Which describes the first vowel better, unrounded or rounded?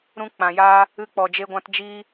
rounded